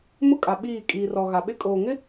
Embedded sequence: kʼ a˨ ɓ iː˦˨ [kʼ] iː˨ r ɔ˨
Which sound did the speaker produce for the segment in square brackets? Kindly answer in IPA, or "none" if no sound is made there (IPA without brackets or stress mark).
kʼ